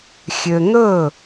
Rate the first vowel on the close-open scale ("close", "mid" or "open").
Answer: mid